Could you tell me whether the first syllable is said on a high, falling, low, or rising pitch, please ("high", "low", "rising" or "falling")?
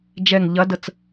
low